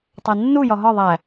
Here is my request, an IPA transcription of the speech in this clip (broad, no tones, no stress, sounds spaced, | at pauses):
tˤ æ nː u j ɒ ɦ ɒ ðˤ æ